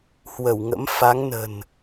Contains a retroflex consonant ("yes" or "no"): no